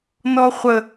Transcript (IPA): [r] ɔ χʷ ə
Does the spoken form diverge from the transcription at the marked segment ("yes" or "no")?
yes